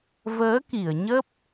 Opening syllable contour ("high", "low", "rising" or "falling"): rising